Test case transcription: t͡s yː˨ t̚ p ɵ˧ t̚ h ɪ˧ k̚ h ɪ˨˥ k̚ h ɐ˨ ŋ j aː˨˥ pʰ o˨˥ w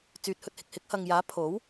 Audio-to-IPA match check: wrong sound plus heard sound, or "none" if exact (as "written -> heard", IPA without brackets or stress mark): p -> h